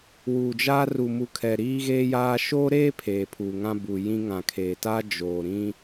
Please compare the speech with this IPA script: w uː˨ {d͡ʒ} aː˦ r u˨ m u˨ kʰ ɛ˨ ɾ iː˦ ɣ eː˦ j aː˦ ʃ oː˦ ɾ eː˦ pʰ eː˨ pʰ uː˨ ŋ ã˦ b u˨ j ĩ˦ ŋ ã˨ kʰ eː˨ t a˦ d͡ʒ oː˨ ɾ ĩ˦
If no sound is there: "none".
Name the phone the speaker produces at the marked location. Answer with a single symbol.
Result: d͡ʒ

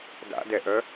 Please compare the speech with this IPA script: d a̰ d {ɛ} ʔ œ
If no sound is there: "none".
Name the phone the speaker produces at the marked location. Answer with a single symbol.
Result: ɛ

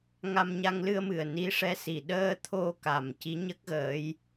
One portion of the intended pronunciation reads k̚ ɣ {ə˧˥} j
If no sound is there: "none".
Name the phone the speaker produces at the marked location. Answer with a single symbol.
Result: əː˧˥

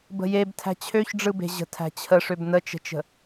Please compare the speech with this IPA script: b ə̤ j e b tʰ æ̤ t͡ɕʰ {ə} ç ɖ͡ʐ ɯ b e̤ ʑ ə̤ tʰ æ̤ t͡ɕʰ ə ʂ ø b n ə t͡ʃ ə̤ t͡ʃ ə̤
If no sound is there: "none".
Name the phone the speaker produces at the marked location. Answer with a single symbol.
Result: ø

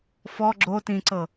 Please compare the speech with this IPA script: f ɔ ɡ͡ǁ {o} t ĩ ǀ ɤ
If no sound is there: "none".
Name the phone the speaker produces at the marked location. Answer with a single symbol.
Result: o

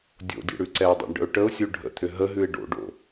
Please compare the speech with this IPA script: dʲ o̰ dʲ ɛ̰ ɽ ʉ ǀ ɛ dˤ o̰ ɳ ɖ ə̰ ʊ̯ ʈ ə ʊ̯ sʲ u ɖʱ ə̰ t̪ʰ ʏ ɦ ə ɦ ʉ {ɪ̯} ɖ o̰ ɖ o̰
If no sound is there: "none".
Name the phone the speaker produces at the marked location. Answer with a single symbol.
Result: ɪ̯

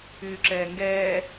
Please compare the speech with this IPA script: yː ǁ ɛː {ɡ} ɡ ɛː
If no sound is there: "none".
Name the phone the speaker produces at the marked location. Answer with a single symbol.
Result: ŋ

